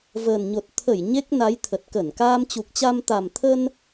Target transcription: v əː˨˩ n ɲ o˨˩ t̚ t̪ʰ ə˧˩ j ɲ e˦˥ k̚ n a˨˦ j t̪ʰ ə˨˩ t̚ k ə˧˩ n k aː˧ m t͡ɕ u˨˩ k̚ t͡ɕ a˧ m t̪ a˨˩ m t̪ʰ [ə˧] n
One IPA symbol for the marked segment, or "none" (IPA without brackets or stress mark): ə˧